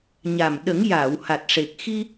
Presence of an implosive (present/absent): present